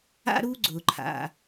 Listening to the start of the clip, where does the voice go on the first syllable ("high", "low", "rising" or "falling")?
high